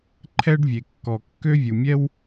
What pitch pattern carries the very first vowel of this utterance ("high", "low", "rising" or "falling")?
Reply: high